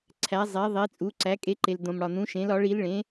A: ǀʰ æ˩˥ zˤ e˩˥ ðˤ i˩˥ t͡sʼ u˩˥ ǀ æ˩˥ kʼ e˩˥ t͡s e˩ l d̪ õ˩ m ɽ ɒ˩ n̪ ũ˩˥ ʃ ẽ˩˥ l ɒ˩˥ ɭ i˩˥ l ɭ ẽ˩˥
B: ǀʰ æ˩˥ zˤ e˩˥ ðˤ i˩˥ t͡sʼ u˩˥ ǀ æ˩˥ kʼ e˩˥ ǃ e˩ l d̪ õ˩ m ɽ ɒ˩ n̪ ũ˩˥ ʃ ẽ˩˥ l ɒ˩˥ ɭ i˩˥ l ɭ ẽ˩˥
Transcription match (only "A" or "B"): B